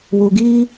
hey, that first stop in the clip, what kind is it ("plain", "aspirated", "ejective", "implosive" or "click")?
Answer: plain